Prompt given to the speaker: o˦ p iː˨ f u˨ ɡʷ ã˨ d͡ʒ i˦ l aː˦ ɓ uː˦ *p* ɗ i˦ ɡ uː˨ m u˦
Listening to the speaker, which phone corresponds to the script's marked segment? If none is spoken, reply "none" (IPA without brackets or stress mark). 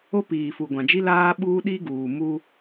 none